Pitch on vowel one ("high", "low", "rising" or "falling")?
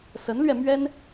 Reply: rising